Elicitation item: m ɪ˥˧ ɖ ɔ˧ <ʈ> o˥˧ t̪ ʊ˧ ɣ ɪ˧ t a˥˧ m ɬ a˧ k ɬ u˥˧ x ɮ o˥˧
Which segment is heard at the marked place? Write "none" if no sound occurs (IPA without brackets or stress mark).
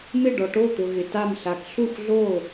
ʈ